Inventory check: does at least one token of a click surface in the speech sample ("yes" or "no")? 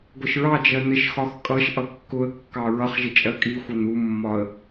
no